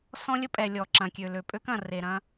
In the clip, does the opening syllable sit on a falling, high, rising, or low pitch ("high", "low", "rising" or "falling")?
high